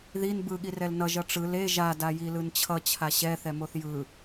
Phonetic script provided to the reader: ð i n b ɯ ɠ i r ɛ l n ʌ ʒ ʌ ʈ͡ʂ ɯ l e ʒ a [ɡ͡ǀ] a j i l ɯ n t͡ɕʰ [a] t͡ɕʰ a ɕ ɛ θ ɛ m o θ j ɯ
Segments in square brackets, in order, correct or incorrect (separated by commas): incorrect, incorrect